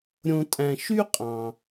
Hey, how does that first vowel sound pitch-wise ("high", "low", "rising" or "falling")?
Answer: low